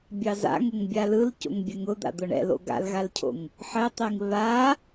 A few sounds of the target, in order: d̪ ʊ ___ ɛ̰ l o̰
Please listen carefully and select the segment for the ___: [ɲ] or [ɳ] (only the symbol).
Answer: ɳ